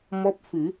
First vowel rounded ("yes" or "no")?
yes